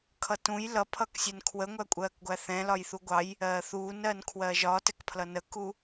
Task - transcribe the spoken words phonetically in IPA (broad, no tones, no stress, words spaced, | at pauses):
kʰʌtũj lʌpʰʌksʲɛn kʰwəŋʷækʷʼɜːkɡʷæ θɛ̃lɒjθu ɡʷɑj | ɜːθuːnɜn kʰwɜːʒɒtɛkpʰlʌ nəku